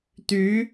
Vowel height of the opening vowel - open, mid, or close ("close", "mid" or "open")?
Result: close